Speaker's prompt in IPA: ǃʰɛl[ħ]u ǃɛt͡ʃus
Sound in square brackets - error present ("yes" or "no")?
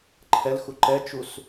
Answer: yes